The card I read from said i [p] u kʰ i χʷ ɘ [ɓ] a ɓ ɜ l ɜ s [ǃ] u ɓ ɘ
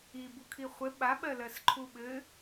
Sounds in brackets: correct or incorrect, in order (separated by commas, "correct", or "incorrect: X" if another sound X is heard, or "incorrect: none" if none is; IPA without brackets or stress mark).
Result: incorrect: b, correct, incorrect: ǃʰ